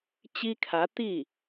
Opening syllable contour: high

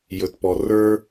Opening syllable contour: low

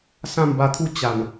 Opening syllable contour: falling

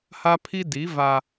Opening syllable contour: high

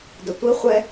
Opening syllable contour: low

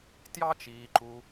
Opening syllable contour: high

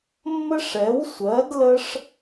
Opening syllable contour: high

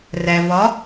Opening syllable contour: low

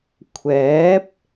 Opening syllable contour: rising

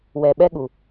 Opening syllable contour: low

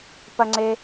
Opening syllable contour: high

